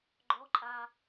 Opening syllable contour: rising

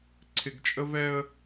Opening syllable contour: low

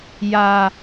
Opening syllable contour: low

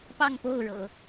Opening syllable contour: falling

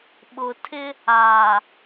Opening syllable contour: low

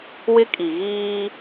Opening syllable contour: high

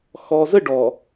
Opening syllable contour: low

